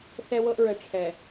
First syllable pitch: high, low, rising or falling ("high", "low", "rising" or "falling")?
high